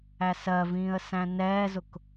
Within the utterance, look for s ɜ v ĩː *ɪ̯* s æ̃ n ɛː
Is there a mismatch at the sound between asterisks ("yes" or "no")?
yes